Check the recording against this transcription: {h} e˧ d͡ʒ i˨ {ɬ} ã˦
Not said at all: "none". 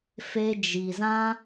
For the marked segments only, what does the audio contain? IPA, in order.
f, z

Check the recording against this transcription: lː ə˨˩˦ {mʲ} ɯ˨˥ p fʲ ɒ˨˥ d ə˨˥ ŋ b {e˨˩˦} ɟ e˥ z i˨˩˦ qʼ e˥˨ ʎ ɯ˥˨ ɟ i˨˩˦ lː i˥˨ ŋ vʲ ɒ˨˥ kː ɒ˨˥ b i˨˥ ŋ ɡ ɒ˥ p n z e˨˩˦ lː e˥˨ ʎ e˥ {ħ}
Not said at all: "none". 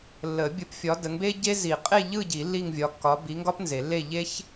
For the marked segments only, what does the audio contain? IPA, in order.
bʲ, e˥, ç

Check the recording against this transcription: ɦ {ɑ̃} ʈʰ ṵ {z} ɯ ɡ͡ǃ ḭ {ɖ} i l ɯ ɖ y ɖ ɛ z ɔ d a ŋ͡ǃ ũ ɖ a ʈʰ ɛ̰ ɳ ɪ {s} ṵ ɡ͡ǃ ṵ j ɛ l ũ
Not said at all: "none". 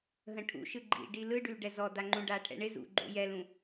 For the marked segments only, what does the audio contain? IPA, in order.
ə̃, ʃ, ɖ, z

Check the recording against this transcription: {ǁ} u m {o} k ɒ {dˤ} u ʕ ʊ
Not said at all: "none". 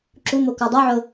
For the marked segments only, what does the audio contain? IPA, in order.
ǁ, o, dˤ

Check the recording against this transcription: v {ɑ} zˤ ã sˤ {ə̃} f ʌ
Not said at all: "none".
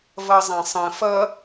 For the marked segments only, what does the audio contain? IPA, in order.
ʌ, ə̃

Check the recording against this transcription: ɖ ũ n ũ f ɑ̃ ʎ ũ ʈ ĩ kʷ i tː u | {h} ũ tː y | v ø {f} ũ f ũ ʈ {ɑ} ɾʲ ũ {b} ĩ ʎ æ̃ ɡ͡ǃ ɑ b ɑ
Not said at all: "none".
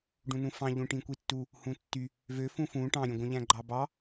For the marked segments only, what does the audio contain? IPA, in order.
h, f, ɑ̃, ɡʷ

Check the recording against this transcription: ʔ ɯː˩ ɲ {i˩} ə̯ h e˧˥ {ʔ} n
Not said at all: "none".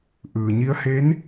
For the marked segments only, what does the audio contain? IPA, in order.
i˧˥, none

